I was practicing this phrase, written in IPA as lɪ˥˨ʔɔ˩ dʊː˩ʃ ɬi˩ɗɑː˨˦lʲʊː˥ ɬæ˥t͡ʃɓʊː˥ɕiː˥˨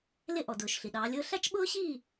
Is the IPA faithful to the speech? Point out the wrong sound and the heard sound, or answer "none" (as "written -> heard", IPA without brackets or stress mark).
none